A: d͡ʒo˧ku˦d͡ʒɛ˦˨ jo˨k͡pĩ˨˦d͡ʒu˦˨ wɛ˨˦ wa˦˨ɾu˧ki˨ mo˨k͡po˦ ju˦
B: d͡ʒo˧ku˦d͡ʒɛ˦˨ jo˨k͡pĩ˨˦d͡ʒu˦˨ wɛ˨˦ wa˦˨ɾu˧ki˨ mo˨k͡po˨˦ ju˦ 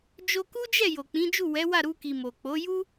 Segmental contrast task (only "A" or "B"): B